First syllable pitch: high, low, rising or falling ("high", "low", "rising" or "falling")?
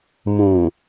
low